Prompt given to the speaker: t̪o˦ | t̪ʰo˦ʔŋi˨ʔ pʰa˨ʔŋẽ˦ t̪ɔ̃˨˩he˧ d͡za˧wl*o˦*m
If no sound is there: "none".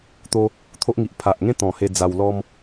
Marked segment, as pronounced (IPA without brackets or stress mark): ɔ˦